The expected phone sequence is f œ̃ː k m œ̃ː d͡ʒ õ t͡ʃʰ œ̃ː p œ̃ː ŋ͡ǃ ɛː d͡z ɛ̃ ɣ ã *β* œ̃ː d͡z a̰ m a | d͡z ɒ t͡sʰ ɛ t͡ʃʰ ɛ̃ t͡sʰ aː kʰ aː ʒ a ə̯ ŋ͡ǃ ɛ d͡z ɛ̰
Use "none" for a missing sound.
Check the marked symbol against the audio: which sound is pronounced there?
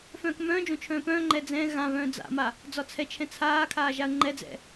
β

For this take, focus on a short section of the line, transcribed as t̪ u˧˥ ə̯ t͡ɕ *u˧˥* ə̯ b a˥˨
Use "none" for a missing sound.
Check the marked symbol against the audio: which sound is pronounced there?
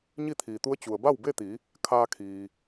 u˩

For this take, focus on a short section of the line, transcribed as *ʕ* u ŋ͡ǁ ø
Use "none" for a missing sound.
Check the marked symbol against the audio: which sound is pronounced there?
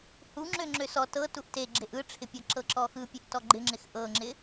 h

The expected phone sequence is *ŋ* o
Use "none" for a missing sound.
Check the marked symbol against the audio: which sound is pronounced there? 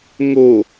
ŋ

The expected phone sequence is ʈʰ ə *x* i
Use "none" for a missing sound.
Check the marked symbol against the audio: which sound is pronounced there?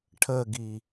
ɡ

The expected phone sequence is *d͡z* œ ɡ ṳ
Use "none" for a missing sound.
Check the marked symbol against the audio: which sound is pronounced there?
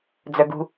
d͡z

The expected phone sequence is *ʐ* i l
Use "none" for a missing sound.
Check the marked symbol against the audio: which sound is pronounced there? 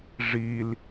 ʐ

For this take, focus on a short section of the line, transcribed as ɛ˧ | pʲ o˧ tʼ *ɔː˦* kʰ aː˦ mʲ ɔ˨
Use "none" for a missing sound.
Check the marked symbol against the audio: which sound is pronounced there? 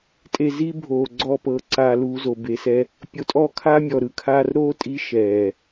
ɔː˦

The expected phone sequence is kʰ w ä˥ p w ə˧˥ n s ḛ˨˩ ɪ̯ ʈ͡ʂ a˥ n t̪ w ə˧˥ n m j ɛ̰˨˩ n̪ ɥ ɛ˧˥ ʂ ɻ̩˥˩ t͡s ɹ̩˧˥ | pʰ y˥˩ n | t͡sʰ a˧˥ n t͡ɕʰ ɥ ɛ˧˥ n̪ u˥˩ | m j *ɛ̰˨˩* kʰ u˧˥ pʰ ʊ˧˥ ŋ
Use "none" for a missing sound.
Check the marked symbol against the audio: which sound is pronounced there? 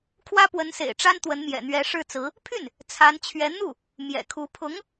ɛ̰˨˩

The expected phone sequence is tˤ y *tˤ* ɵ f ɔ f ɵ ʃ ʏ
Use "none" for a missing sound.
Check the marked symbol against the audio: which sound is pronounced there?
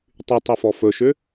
tˤ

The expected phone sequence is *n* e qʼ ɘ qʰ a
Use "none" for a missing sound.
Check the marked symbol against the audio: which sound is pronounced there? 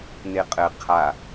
n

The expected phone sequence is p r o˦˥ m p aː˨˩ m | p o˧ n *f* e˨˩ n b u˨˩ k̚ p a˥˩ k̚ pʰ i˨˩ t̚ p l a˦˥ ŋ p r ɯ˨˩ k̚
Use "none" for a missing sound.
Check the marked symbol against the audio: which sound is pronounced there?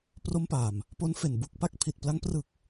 f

